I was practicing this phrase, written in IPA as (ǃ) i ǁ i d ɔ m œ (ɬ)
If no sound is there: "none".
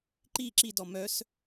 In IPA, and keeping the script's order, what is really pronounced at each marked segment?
ǃ, s

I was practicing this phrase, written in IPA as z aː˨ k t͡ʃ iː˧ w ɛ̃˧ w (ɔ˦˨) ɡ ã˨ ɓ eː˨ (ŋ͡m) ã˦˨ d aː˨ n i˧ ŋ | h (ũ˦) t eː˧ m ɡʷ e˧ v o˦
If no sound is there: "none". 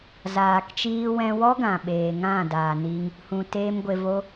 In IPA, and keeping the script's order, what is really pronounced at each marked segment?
ɔ˦, ŋ, ũ˨

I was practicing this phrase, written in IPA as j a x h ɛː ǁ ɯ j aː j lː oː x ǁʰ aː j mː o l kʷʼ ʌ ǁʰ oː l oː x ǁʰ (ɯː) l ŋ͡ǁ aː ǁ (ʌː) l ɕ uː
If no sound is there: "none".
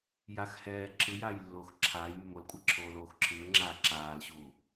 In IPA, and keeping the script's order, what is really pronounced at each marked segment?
ɯː, aː

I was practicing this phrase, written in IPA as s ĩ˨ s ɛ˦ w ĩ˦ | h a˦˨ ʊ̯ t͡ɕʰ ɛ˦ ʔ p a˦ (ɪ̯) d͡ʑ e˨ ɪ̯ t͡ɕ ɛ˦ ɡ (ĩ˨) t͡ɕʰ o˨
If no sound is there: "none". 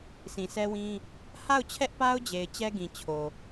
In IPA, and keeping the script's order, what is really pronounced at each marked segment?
ʊ̯, ĩ˨

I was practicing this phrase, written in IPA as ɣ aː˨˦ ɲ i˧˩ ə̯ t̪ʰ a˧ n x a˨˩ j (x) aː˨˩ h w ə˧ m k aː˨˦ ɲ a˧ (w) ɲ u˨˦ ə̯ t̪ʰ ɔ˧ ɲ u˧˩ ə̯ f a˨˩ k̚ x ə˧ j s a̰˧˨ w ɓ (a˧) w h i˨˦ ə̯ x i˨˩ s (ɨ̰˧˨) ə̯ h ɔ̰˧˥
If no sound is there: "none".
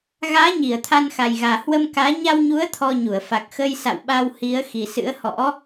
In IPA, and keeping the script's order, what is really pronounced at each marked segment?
ɣ, w, a˧, ɨ̰˧˥

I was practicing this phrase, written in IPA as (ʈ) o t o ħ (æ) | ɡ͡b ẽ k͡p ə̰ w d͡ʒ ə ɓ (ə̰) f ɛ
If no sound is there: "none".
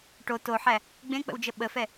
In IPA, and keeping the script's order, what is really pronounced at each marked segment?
ʈ, æ, ə

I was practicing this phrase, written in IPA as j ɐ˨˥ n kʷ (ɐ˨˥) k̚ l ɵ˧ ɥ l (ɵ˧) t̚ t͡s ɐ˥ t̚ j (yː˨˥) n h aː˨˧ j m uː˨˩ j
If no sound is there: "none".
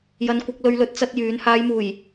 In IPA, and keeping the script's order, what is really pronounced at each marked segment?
ɐ˨˥, ɵ˧, yː˨˥

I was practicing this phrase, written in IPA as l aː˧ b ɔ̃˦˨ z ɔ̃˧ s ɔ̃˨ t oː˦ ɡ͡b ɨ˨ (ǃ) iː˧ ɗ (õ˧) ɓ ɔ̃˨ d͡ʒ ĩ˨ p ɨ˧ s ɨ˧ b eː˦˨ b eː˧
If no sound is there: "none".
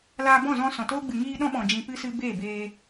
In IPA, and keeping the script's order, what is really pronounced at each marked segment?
ŋ, ɔ̃˧

